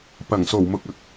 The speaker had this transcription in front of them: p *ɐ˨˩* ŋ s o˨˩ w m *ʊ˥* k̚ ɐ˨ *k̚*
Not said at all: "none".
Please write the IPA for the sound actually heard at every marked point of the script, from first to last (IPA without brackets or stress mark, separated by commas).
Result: ɐ˨˩, ʊ˨, k̚